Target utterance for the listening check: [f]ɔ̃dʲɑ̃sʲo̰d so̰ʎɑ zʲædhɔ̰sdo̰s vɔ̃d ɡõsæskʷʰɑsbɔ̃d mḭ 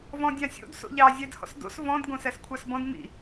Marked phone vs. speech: incorrect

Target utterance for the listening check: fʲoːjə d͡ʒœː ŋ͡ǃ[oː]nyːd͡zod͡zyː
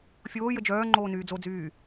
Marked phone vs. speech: correct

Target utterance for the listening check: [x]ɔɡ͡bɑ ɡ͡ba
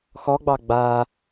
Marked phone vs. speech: correct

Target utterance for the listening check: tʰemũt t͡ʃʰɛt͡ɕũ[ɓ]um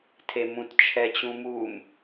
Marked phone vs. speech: incorrect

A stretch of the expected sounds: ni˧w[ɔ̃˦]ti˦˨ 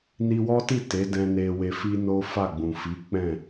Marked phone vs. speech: incorrect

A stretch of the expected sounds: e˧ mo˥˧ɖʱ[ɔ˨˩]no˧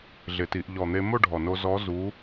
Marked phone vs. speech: correct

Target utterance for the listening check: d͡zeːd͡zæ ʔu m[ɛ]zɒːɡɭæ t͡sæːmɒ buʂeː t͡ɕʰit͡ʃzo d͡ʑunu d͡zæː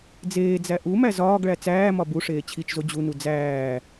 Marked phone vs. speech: incorrect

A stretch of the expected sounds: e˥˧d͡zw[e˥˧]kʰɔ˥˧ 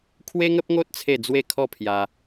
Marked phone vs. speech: correct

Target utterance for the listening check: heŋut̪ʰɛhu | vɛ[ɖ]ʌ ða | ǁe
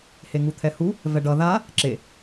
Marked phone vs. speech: correct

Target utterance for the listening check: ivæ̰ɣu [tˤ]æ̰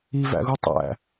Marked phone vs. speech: correct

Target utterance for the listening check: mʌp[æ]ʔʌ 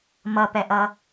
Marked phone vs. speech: incorrect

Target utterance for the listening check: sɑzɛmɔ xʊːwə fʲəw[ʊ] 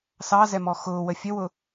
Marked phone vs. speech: correct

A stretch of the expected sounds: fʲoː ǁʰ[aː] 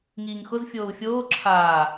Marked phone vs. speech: correct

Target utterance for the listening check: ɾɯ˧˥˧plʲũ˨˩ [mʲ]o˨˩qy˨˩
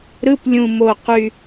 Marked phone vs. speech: incorrect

